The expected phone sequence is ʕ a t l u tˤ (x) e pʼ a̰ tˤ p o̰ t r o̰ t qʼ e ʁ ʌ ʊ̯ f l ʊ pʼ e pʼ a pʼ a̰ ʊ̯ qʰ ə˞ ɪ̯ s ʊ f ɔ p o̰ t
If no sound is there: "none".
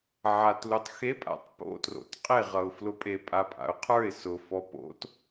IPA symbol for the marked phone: x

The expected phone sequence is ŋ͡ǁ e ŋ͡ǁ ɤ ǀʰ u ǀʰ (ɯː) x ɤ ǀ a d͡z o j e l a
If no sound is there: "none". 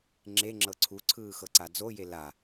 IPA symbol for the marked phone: ɯː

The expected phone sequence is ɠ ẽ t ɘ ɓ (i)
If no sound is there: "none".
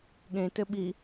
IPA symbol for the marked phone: i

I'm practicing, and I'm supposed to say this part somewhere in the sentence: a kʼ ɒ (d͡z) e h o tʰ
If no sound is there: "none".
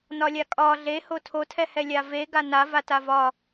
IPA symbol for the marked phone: ɮ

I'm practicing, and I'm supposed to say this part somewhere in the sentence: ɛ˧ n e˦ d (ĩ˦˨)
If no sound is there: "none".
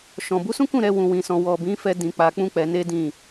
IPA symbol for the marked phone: ĩ˦˨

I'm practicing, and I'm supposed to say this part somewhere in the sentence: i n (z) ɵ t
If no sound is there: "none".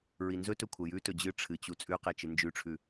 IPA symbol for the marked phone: z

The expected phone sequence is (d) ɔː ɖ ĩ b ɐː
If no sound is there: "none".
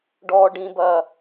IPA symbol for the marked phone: ɖ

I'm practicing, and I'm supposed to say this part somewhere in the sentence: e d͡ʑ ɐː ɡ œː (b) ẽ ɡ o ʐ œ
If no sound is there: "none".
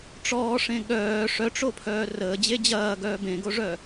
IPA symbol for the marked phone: b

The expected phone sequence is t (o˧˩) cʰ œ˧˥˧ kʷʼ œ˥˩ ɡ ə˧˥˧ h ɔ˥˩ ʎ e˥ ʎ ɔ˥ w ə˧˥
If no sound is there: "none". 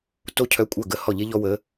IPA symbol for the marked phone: o˥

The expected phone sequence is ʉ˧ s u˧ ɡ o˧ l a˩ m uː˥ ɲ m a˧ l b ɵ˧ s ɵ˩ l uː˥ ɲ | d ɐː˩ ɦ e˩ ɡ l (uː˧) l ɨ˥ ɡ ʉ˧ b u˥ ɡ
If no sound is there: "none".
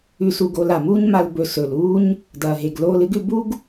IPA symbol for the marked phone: oː˧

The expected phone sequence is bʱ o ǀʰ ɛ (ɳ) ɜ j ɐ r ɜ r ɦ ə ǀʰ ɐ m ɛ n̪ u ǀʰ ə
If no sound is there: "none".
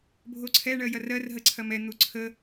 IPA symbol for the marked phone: ɳ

